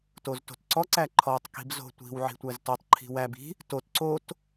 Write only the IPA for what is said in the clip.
t o z t o̤ t ǀ ɔ ǀ æ ǃʰ ɔ tˤ k i̤ b z o̤ tʷ i̤ w ʕ i̤ tʷ æ z t o tˤ ǃʰ i̤ w æ b i̤ | t o t ǀ o t

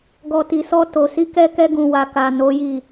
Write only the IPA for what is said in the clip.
ɡ ɔ˨ t i˨ s ɔ˧ t o˨ s i˨˦ k ɛ˧ k ɛ˧ ɡ ũ˨ w a˨ k a˨ n o˨˦ j i˦˨

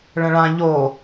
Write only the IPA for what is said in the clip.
ɭ ə̃ ɭ ã ʎ o

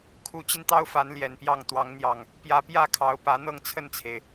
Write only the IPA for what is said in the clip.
kʰ u˨˦ t͡ɕ i˧ n t̪ ɑ˦ ʊ̯ f a˨˦ n l j ɛ˨˩ n p j ɑ˥˨ ŋ t̪ w ɑ˨˦ ŋ n̪ j ɑ˨˩ ŋ | p j ä˨˦ p j ä˥˨ kʰ ɑ˨˦ ʊ̯ p ä˨˦ n̪ ɤ˥˨ ŋ t͡sʰ ə˥˨ n t͡sʰ e˩ ɪ̯

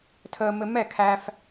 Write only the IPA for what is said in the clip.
tʰ əː˧ m ɘ˧ m ɛ˦˨ kʰ æ˧ f

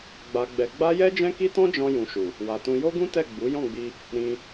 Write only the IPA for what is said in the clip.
ɡ͡b a˧ ɡ͡b ɛ˧ ɡ͡b a˦ j ɛ˦ d͡ʒ ɛ̃˦ k i˦ t ɔ̃˦ d͡ʒ ɔ̃˧ j ũ˧ ʃ u˨ | w a˨ t ũ˧ j o˦ ɡ ũ˦ t ɛ˦˨ ɡ͡b u˨˦ j ɔ̃˦˨ ɡ͡b i˧ | ɾ ĩ˧

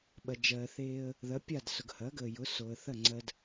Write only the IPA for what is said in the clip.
ɓ ɐ˩ d͡ʒ ɜː˩ θ eː˧ ə̯ | ð ɐ˩˥ pʲ a˥˩ d s ʊ˩ ɡ h ɐ˩˥ ɡ əː˩ j ʊ˩˥ s o˩ ə̯ θ ɐ˥˩ ŋ͡ǀ ɜ˧ d

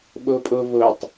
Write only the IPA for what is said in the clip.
ɓ o pʼ o v o tˤ

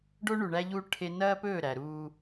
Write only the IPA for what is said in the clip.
ɖ o˦ ɳ u˨ ɳ æ˦ ʎ u˦ ʈʰ e˦ n ɐː˦ p ɵː˦˨ ɾ æ˨ ɾ uː˦

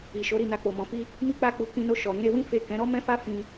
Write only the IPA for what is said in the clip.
i˨ ʃ o˨˦ ɾ i˦˨ n a˧ k͡p o˨ m ɔ̃˨ f i˧ | m i˦ k͡p a˦ k͡p u˧ k ĩ˧ n o˧ ʃ ɔ˨ ɾ ĩ˧ ɾ e˧ w ĩ˦ f e˦˨ k ɛ̃˨˦ ɾ ɔ˦ m ɛ̃˦ f a˦ f ĩ˧

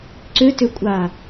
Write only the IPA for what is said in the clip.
ǀ ʏ t ʏ kʷʼ a

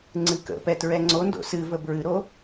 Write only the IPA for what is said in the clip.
ŋ͡ǀ ɨ k ə̰ p ɛ t ɹ ɛ ŋ͡ǀ o n d o̰ s ɨ v ə b ɹ ɨ ɾ o

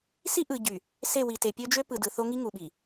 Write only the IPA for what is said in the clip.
s i˦ ʔ ɯ˨ ɟ y˨ | s e˦˨ w i˨ t e˨ pʲ ø˦ d͡ʒ ø˦ p ɯ˨ d ɯ˨ θ o˦ ŋ i˦ ŋ u˨ ɓ i˨

